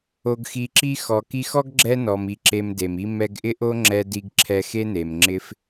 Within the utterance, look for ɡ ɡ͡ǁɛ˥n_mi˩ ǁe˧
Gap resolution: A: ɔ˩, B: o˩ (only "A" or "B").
A